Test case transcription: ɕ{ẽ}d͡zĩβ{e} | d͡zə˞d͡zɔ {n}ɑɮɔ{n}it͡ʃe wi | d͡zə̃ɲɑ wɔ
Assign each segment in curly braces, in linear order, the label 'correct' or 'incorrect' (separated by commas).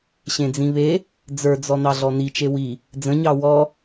correct, correct, correct, correct